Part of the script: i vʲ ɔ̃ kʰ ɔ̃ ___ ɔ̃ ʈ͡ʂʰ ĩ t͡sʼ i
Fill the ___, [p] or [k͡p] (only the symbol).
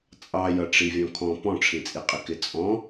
p